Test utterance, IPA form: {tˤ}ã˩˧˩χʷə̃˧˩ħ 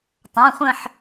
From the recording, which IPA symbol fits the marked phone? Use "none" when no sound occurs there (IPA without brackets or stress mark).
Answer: tˤ